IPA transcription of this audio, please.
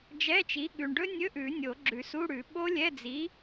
d͡ʒɛ˧˥˧t͡ʃi˨˥ ɠʉ˨ɳɖɵ˦˥nʲɵ˧˥˧ʔʉ˨˩˦ nʲo˨˩˦ɡ͡ǁʉ˨˩˦su˧˥˧ɽʉ˨˩˦ ɓo˦˥lʲɛ˧˥˧ d͡zi˨˥

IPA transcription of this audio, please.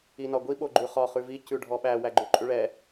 inɒɡʷi ɓoɡ͡ǃʉχɒ χʉvi cʉɖʱɔɓæ wæɡ͡ǃʉǃʼʉɭɛ

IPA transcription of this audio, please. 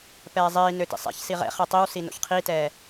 pɛːzˤiːnø tḭsˤɛ̰çsi ʁɛ̰ χɛtˤiwsi no̰çqʰitɛː

